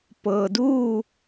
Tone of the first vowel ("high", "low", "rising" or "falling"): low